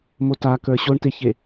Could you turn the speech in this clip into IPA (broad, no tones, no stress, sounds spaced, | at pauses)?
m o t a k ə˞ ɕ o ɳ t e ç e